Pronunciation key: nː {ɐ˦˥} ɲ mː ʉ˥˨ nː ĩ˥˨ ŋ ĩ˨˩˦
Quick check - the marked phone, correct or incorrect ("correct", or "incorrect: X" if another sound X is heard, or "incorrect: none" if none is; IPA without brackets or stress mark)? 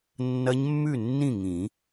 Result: correct